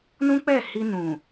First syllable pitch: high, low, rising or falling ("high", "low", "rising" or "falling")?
high